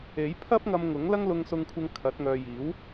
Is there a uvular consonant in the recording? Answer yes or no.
no